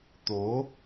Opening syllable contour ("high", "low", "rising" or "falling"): rising